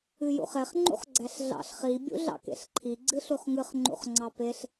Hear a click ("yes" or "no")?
yes